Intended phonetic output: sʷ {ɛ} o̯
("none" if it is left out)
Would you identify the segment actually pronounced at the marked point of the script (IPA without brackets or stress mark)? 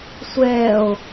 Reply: ɛ